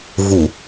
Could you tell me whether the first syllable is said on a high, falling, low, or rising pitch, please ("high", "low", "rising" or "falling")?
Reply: low